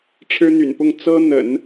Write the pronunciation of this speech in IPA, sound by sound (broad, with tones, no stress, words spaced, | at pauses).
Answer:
ʈ͡ʂʰɻ̩˥n̪y̰˨˩npʊ˥˩ŋ t͡sɤ˥n̪ə̰˨˩˦n